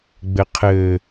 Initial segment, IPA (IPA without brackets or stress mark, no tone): ɡ͡b